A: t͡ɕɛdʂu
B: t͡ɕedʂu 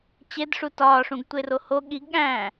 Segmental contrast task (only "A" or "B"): B